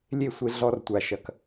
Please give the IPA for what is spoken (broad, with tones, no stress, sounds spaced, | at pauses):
lʲ e˦˨ sʷ e˧ ɮ ɔ˧ r tʷ a˨ ʃ ɐ˨ k